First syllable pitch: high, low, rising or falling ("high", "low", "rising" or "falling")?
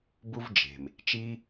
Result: high